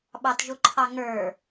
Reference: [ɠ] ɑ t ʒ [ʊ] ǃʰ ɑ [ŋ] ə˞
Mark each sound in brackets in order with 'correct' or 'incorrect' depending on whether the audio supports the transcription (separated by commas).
incorrect, correct, correct